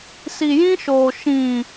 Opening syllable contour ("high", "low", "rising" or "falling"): low